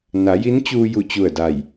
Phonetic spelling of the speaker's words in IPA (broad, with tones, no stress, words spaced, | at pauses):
na˩˧ji˧˥n t͡ɕuː˧ju˧˩t͡ɕu˧˩ə̯da˧˩j